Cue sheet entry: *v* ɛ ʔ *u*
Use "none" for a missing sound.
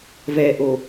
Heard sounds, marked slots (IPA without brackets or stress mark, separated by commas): v, o